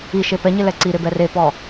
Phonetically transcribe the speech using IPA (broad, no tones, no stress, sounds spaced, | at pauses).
i ʃ e p ɛ ɲ ɪ l ɛ ǀ i ɾ ɪ b ɛ r e p ɔ